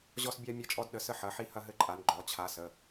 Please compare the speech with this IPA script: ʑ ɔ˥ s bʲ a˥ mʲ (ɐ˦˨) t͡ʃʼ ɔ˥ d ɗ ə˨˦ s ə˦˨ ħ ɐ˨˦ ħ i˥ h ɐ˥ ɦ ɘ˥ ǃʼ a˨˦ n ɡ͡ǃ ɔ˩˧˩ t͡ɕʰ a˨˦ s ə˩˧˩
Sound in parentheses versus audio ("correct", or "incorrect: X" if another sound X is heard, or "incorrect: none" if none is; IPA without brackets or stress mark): incorrect: ɐ˥